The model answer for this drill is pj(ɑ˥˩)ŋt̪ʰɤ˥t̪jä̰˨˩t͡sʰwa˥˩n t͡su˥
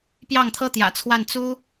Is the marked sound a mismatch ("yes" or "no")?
no